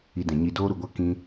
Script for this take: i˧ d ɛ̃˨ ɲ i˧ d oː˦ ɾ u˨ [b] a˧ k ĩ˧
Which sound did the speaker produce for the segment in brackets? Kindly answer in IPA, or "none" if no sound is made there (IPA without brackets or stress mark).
ɡʷ